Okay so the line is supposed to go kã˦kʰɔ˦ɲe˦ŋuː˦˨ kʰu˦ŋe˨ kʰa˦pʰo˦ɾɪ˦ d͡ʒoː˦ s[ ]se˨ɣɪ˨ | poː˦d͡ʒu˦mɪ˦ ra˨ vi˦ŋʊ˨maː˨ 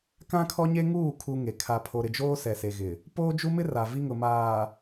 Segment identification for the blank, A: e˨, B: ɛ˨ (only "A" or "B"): B